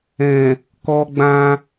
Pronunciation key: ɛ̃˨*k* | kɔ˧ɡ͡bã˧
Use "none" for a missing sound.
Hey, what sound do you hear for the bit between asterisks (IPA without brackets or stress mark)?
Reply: none